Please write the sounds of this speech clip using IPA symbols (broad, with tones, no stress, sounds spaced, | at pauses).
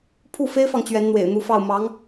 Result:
pʰ u˥˩ f e˥ ɪ̯ f ɑ˨ ŋ t͡ɕ ɥ ɛ˧˥ n n̪ w ḛ˨˩ ɪ̯ n̪ u˧˥ f ɑ˥˩ ʊ̯ m ɑ˧˥ ŋ